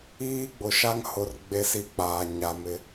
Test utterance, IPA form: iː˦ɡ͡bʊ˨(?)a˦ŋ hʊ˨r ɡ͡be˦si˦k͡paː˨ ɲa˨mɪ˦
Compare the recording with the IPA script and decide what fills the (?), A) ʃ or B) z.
A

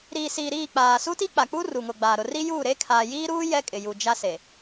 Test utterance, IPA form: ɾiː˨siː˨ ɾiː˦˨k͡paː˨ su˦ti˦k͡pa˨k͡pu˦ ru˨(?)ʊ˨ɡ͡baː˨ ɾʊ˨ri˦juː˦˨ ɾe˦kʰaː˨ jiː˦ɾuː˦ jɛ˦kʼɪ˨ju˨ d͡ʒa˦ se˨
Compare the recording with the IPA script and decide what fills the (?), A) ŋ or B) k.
A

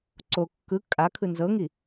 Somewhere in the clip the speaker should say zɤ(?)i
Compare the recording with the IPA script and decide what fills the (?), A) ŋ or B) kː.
A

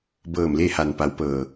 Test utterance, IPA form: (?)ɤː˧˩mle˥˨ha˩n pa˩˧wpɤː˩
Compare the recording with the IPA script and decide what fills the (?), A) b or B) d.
A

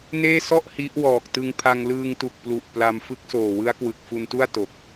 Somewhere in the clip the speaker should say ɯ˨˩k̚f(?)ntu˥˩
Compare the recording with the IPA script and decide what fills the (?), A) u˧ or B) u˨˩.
A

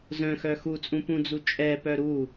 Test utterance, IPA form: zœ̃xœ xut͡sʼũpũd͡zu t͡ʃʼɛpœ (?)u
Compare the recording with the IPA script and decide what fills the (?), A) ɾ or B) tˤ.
A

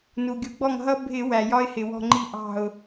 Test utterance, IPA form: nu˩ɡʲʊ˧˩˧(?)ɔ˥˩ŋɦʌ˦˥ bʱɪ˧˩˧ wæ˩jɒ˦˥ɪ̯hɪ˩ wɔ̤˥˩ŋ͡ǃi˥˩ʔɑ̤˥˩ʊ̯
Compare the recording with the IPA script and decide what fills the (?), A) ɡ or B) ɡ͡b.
B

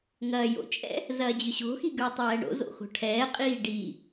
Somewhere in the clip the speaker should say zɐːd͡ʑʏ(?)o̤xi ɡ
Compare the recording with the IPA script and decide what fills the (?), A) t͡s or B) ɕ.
B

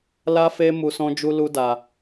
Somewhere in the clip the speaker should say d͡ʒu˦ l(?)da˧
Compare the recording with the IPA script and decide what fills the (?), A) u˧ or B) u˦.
B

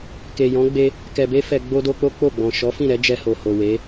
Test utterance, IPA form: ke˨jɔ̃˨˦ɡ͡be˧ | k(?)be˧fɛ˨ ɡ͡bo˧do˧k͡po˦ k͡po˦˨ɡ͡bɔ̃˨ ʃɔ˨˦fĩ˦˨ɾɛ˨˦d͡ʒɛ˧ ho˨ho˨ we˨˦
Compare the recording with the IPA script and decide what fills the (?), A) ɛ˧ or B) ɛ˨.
B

